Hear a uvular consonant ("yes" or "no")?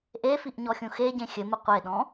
yes